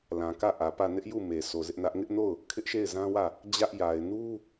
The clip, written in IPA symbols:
l ã˨ k ä˦˨ ʔ ä˨ p ä˦˨ n ɪ˦ ʔ j u˦˨ m e˨ sʰ o˨ z ɪ˦ ʔ n ä˦ ʔ ŋ ɪ˦ ʔ n o˦˨ ʊ̯ | kʰ ɪ˦ ʔ ʃ e˦˨ ɪ̯ z ã˦ w ä˦˨ | d͡ʑ ä˦ ʔ j a˨ ɪ̯ n u˦

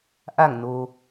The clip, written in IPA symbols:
ʔ a˧˩ ŋ n o˩

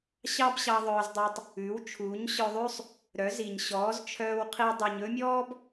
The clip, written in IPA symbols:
ɕ ɑ˥ b ɕ ɑ˧ ðˤ œː˧ z dˤ u˧ tˤ | ʉ˩˥ w t͡ʃʰ uː˩˥ ɲ ɕ œ˧ ðˤ ʉ˥ sˤ | ɾ œ˩˥ z i˩ ɲ ɕ ɔː˩˥ z t͡ʃʰ œː˧ w qʰ i˥ dˤ y˧ ɲ ɵ˥ mʲ ɔː˥ b

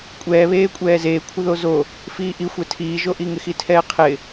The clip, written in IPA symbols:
kʷʼ ɛː β eː kʷʼ ɛː z eː kʷʰ ɪ ð o z o | f iː ʔ i xʷ ɛ tʰ iː ʒ o ʔ i ŋ ɪ x i tʰ ɛː qʰ ɪ

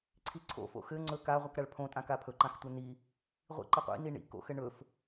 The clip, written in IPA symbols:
ǀʰ i ǀʰ o̰ f o̰ x ɘ ŋ͡ǀ ɵ k a ʁʷ i k ɾ a ɭ pʰ õ tʼ ã k a pʰ ɵ ǃ ã x tʷ ɘ n i | ʁʷ ḭ ǃ ɘ qʷ ḭ n i ɳ ḭ k o̰ x ɘ ɳ ɵ f

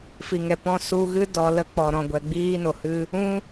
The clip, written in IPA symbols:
f i˨ ŋ ɛ˨ p ɔ̃˦˨ s u˧ ɣ ɨ˦ d ɔ˧ l ə˦ k͡p ɔ˨ ɾ ɔ̃˨ ɡʷ ɛ˨ ɡ͡b iː˦ n o˨ h ɨ˦ | ũ˦

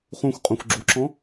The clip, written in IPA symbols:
χ ũ xʷ qʼ ũ xʷ ɡ͡ǁ u ǁ ɔ̃

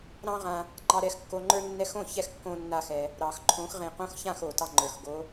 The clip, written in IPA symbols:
ɾ ɑ̃˦ ʁ ã˨ | ŋ͡ǃ ɑ˨ ɾ ɛ˨˩˦ x kː o˨ ŋ͡ǃ ə˞˦ nː ɛ˦ x õ˥˨ ç ɛ˥˨ x kː õ˦ nː a˦ x ɛ˨ | ɾ ɑ˨˩˦ x ǃʰ õ˨˦ x ʁ ẽ˨ q õ˦ x ç ã˥˨ x o˨˩˦ t ɑ˦ ŋ͡ǃ ə˞˨ x ɡ o˨˦

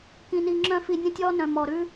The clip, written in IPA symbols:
k ĩ˧ n i˧ ŋ͡ǁ œ̃˦ f i˧ nʲ œ̃˧ tʲ ɔ˧ n œ̃˨ m ɔ˨ ɾ ʉ˦

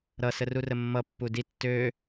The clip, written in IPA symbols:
ɾ ʌ s ə r u r ə mː ʌ pː u d i tː ø

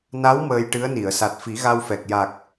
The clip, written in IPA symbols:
n a˧˥ w m əː˧ j ʈ ɨ˧˥ ə̯ n i˨˩˨ ə̯ s a˨˩ t̚ f i˨˩˦ ɣ a˧ w f ɛ˨˩ k̚ j a˨˩ k̚

